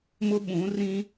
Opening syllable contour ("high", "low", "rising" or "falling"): high